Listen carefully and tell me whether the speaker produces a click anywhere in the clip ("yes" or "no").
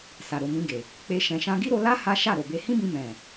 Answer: no